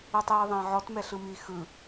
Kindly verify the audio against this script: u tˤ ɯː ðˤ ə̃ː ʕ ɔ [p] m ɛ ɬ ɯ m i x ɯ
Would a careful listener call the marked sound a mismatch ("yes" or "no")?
yes